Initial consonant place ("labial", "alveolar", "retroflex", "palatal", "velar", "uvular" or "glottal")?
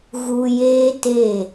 velar